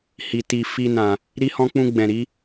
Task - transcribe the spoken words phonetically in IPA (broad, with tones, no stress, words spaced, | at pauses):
hi˨ ti˨ fi˧ nã˨ | ɾi˦hɔ̃˦ k͡pũ˧ ɡ͡bɛ̃˨ɾi˨˦